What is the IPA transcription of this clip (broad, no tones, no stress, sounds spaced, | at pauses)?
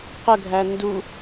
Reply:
q ə ɡʱ æ n d u